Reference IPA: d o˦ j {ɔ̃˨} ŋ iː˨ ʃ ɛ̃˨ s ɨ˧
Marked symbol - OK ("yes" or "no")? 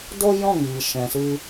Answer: no